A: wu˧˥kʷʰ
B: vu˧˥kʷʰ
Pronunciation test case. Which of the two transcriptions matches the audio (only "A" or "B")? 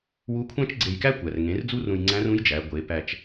A